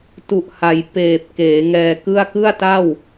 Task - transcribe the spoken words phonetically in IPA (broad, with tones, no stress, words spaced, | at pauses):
tu˨˩ʔha˩˦j peː˨˩p̚ keː˩˦ŋɛː˧kɯ˥˩a̯ kɯ˥˩a̯ta˥˩w